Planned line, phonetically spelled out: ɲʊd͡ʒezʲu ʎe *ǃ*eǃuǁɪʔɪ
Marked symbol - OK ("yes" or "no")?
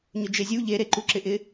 no